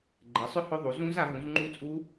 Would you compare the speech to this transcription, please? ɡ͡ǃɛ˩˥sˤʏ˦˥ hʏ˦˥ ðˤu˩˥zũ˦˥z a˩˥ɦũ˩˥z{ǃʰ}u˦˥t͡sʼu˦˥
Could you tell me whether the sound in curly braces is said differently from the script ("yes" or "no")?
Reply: yes